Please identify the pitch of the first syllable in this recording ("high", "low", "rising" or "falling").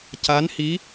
rising